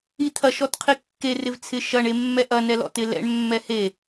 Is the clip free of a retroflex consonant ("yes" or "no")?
no